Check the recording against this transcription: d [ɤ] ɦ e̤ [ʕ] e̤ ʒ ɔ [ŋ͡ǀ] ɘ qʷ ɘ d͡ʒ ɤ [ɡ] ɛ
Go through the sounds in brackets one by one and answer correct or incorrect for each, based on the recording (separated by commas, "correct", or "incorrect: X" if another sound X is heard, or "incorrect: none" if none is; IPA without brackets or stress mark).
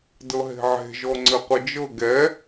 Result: correct, correct, correct, correct